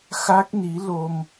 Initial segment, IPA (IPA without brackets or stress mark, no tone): x